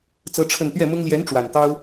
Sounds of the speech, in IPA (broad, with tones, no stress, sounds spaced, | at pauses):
t͡s ɤ˥ ʈ͡ʂʰ ə˥˧ n t̪ ɥ ɛ˥˩ m ʊ˥ ŋ l j ɛ˧˥ n ʈ͡ʂ w a˨˩ n t̪ ɑ˥ ʊ̯